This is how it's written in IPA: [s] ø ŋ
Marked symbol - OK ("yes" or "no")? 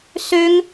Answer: yes